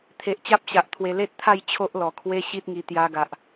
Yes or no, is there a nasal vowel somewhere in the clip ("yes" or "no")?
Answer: no